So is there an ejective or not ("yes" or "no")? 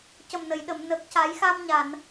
no